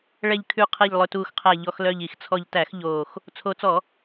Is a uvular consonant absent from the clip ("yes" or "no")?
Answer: no